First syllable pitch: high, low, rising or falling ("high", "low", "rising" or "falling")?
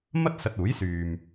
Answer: high